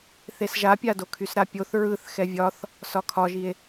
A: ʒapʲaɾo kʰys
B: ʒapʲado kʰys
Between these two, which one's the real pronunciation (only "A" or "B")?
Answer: B